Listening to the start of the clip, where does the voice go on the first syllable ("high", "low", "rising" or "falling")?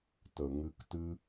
low